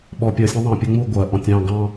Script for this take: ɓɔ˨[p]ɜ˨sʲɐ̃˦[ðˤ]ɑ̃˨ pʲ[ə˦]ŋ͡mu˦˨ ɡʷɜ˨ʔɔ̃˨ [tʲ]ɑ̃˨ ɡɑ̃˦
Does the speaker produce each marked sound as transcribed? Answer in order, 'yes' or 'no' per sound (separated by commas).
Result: no, yes, yes, yes